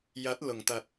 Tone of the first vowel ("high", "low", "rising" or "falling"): rising